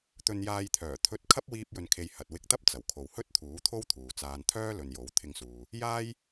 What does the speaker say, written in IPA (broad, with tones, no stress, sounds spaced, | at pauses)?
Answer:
t̪ ɵ˧ n j aː˧ j t̪ʰ œː˨˩ t̪ʰ ɵ˧ t̚ kʰ ɐ˥ p̚ w iː˥ p̚ j ɵ˧ n kʰ e˧ j h ɐ˨ t̚ w ɪ˧ k̚ t̪ ɐ˥ p̚ t͡s ɐ˨˩ w kʰ o˨ w h ɵ˥ t̚ t̪ʰ uː˨˥ t̪ʰ o˥ w t̪ʰ uː˨ t͡s aː˨ n t̪ʰ œː˥ l ɵ˨ n j o˨˥ w t̪ʰ ɪ˧ ŋ s uː˨ | j aː˥ j